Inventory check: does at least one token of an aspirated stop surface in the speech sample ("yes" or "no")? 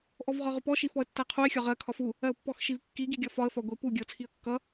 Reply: yes